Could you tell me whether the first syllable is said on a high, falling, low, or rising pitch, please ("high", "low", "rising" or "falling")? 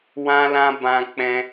high